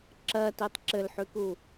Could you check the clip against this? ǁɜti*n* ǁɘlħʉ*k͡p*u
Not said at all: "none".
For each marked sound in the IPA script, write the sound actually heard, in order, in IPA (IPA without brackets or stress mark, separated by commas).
tˤ, k